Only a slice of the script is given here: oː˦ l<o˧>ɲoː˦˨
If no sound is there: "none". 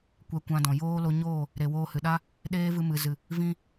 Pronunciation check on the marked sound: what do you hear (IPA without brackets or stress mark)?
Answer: o˧